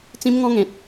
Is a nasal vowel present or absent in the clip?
present